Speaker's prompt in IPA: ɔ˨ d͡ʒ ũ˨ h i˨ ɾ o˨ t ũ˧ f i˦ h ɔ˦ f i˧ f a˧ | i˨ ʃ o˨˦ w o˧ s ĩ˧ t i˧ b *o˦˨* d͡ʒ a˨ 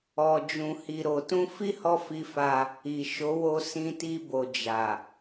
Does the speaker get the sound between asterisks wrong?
yes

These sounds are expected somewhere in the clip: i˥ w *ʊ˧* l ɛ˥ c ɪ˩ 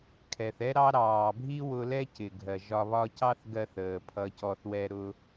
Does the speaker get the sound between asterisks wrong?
no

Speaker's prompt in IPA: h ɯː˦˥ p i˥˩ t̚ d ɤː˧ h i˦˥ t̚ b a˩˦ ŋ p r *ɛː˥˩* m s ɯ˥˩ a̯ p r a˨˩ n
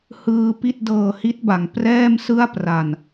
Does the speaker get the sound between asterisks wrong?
no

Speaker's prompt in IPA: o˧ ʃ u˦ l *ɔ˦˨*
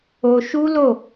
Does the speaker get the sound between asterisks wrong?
yes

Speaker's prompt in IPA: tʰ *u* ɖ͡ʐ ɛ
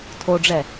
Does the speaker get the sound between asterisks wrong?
yes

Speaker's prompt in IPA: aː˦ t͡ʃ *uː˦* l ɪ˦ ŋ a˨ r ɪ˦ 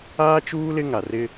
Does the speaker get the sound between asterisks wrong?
no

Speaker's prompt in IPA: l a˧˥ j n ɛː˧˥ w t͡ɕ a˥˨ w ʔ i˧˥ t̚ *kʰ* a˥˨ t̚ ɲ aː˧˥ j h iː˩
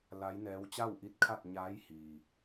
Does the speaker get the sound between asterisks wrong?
no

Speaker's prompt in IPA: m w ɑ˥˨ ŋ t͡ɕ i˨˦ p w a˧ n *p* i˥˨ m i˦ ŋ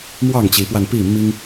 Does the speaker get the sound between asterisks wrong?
no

